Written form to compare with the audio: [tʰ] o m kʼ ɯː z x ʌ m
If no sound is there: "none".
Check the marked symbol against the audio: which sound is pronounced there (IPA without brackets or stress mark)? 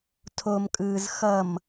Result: tʰ